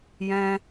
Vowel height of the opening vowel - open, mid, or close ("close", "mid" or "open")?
mid